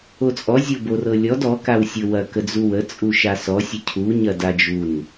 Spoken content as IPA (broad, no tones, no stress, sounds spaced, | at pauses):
o t͡sʼ ɔ zʲ o b o r ɤ lʲ ɔ d ɔ k a w sʲ ɤ w ɐ k ə d͡z u w ə t͡sʼ u ʃ a s ɔ sʲ ə cʰ u ɲ ɐ d a d͡ʒ u n